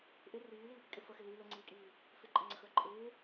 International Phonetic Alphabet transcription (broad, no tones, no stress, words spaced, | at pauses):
ʔɪ riːliːpikʼɪ fəxɪ li lɘŋ͡ǀiːkʼiː | fɪǃʼɘŋ͡ǀəxə˞ ǃʼɪː